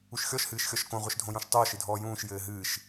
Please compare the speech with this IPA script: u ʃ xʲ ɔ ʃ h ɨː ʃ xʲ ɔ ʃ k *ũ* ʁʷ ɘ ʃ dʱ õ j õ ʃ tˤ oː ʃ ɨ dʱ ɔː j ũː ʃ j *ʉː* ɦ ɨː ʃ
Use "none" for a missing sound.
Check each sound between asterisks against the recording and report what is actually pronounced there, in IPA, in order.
õ, ɘː

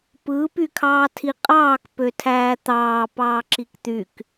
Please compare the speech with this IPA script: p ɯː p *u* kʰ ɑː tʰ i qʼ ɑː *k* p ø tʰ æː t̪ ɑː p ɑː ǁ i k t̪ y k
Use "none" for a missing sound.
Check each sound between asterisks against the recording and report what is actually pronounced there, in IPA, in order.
y, k

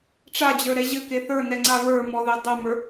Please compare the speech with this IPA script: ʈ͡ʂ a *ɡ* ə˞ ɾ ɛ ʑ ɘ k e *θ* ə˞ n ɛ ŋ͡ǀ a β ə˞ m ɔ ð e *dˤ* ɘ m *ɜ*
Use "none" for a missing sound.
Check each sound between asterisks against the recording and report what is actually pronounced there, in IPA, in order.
d͡ʑ, θ, dˤ, ə˞

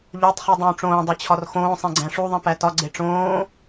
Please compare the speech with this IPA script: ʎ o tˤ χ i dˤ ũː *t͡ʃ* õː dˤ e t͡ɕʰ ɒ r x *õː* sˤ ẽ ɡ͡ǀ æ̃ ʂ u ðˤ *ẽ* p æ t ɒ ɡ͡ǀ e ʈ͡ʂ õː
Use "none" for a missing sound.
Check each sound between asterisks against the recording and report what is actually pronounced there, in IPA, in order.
ʈ͡ʂ, õː, ẽ

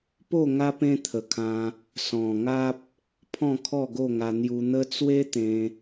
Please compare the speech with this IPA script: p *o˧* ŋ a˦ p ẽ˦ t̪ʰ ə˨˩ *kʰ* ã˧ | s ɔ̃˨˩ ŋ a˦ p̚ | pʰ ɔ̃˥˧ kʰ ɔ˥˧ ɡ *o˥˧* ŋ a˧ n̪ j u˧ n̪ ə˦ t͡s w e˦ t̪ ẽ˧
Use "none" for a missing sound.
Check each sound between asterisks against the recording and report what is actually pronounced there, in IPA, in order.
o˥˧, kʰ, o˥˧

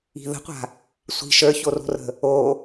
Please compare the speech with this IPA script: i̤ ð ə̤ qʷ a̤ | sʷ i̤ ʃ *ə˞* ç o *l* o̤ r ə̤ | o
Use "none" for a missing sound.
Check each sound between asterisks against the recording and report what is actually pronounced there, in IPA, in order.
ə˞, r

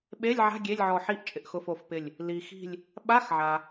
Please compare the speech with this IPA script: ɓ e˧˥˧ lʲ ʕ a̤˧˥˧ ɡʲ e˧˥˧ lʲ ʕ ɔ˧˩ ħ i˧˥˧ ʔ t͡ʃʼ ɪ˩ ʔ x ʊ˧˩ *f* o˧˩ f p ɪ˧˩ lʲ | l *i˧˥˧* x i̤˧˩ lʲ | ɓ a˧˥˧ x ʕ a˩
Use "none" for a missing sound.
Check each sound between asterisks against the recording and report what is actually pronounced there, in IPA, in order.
f, i˩

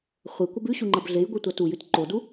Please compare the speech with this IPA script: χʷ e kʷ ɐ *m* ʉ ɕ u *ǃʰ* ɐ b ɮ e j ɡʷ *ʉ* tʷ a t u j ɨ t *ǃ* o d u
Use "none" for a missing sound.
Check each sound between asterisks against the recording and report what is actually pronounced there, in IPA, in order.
b, ŋ͡ǃ, ɨ, ǃ

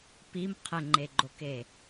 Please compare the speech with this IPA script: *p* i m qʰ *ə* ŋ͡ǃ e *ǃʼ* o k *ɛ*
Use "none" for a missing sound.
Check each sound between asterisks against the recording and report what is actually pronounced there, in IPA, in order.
p, ə, ɡ͡ǃ, e

